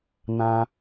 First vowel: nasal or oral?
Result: nasal